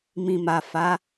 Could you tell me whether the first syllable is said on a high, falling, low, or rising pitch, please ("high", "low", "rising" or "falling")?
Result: low